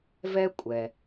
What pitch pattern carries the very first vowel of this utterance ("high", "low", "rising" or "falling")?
high